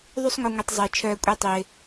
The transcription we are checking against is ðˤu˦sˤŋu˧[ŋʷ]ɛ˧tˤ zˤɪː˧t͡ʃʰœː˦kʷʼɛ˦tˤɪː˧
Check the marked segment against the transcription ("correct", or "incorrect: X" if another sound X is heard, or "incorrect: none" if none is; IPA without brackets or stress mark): correct